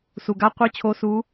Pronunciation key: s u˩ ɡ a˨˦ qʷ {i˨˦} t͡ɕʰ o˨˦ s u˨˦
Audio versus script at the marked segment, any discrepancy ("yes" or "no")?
no